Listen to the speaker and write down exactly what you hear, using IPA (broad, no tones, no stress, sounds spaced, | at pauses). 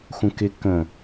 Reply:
xʷ ə̃ k ɪ k ə̃